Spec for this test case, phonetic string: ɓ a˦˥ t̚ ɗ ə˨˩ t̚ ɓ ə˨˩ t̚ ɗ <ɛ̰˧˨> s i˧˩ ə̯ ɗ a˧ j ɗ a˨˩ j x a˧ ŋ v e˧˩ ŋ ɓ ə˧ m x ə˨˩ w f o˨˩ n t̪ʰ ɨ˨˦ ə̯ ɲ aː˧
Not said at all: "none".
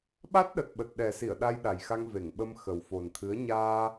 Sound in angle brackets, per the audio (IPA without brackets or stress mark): ɛ˨˩